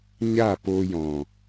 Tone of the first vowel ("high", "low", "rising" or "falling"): falling